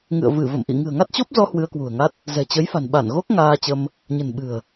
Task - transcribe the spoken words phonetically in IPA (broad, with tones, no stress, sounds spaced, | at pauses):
ŋ ɨ̰˧˨ ə̯ v ɨ˧˩ v ə̰˧˨ m ʔ ḭ˧˨ ŋ ɨ̤˨˩ ə̯ ŋ a˦˥ t̚ t͡ɕ o˦˥ p̚ z ɔ˧ h w ɨ˧ ə̯ k w ṳ˨˩ ə̯ ŋ a˦˥ t̚ | z ɛ̤˨˩ t͡ɕ ə˨˦ j f a̤˨˩ n ɓ a˧˩ n ɣ o˦˥ k̚ ŋ aː˧ t͡ɕ ə˧ m | ɲ ə̤˨˩ n ɓ ɨ̤˨˩ ə̯